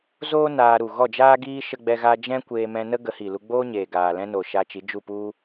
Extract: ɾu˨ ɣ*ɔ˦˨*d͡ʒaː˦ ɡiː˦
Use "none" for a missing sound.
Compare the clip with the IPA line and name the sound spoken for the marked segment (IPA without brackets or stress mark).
ɔ˦˨